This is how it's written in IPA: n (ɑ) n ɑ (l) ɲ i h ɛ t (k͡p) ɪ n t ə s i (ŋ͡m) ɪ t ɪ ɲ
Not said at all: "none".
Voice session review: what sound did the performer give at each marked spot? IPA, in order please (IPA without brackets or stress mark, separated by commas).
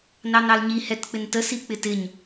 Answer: ɑ, l, k͡p, k͡p